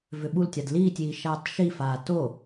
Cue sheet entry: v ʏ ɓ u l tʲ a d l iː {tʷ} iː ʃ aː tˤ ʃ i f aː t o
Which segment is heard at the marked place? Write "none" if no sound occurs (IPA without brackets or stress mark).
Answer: tʲ